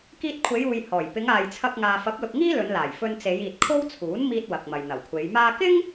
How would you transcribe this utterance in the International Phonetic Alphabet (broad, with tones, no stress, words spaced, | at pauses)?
kiː˧t̚kʷʰe˨˧juː˨j hɔː˨˩j pɪ˨˧ŋaː˨jt͡sʰɐ˧k̚ ŋaː˨fɐ˨˥p̚lʊ˨k̚ŋiː˥ lɵ˨˧nlaː˨˩j fɵ˧nt͡se˨˧j iː˨t̚kʰo˥wt͡sʰuː˨˥nmiː˧t̚ wɐ˨k̚mɐ˨jn̪ɐ˨˩wkʷʰe˨˧j maː˧kɪ˥ŋ